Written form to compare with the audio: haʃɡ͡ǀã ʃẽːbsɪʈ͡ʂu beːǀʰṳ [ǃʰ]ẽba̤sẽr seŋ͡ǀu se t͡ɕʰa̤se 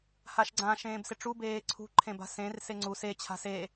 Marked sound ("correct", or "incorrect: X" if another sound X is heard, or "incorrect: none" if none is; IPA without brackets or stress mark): correct